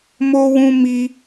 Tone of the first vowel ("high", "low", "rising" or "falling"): high